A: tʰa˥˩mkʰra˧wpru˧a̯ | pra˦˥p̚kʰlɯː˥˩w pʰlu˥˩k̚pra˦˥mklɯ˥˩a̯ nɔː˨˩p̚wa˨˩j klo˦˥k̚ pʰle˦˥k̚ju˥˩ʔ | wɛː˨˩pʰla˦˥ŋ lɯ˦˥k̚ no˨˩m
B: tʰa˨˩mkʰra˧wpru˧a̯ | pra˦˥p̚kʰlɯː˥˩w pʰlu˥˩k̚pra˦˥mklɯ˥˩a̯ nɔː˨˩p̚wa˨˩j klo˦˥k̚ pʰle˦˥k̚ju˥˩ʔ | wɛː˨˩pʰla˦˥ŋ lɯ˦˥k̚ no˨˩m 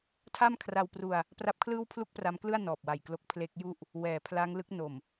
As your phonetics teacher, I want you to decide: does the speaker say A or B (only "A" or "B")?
A